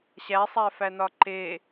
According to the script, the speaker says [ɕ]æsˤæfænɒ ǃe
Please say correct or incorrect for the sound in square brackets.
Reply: correct